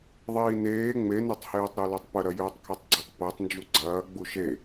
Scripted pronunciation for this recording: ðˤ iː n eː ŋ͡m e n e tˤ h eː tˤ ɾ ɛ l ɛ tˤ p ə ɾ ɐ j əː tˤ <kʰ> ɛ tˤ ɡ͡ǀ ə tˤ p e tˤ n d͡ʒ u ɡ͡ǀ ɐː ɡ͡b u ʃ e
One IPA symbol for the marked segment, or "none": kʰ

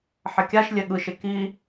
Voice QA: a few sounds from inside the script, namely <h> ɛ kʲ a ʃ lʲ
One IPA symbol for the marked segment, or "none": ħ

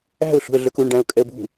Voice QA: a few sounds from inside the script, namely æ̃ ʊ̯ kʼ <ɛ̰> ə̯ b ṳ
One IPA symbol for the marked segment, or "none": ɛ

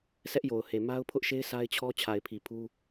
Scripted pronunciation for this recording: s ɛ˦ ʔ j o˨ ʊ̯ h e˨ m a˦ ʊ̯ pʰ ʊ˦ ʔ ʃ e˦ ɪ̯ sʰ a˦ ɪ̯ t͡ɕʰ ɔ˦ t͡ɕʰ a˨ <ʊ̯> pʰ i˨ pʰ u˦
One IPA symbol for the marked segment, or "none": ɪ̯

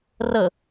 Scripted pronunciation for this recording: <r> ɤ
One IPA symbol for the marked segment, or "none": r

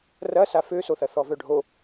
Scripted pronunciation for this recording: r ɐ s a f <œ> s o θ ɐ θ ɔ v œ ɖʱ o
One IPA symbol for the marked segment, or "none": ø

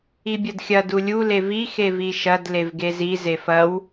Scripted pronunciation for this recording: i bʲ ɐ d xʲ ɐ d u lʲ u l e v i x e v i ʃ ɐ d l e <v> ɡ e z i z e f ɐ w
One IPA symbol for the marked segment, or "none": v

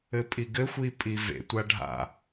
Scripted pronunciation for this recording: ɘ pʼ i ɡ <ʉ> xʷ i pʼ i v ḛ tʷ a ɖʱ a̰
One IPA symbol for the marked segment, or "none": ɘ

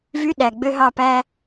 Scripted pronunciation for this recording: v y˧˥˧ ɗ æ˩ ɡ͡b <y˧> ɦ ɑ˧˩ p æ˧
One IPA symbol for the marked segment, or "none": ø˧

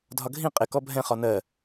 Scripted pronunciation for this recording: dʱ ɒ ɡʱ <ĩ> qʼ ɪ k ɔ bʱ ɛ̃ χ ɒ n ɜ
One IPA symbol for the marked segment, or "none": ĩ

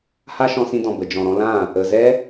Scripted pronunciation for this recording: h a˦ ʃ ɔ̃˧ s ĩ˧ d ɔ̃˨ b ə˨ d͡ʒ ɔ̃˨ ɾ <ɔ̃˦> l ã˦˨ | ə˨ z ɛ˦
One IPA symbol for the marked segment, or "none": ɔ̃˧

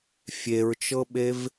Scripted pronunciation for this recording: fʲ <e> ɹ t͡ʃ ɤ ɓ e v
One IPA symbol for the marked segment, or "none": e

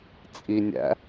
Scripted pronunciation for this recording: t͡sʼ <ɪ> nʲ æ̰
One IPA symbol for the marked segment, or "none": i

